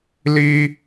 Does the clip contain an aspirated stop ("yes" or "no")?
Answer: no